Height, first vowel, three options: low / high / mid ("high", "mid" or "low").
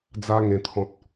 low